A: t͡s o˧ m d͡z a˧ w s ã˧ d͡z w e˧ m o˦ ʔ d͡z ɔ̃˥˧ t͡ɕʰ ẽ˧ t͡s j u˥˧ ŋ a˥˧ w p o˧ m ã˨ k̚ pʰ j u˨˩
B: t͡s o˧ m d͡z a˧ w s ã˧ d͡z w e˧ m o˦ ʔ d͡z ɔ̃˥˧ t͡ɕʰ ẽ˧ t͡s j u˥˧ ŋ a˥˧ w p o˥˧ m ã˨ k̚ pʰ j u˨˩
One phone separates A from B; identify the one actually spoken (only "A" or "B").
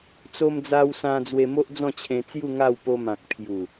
A